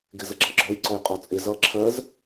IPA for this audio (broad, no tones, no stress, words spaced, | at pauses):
ɡɪzəɡ͡ǁʌɡ͡ǁɔj ǀɔjqʼɔt͡sʼɪ zʌ ǁʰɜz